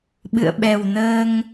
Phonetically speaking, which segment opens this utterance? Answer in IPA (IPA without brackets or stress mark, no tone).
ɓ